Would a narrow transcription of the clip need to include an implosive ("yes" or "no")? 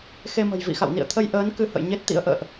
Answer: no